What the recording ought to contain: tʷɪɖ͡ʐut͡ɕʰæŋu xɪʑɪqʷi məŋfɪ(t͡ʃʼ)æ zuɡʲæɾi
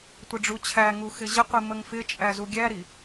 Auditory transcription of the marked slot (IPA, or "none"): t͡ʃʼ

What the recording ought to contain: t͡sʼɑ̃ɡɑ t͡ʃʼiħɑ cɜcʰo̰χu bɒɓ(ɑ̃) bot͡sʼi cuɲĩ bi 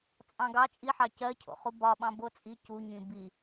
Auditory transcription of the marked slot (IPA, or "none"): ɑ̃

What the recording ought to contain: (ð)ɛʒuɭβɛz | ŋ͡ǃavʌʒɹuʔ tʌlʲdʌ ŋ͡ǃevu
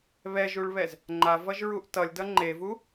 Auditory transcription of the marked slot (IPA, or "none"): β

